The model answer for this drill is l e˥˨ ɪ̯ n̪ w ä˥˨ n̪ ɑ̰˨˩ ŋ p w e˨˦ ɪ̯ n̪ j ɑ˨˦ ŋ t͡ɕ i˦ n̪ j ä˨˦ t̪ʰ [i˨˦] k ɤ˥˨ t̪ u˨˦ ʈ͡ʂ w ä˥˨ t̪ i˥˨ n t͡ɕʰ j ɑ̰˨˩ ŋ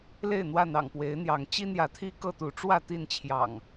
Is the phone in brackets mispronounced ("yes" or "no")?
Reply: yes